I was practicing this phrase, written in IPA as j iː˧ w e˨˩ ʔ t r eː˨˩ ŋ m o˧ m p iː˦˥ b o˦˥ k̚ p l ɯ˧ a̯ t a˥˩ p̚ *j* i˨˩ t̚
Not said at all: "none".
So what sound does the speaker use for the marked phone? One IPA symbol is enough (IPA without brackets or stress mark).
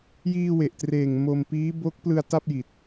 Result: j